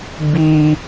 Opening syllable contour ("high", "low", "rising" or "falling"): high